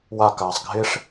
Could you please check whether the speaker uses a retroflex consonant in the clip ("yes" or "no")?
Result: yes